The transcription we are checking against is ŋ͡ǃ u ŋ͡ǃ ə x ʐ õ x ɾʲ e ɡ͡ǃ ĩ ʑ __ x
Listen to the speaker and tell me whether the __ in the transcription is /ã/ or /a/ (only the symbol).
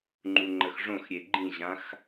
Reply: ã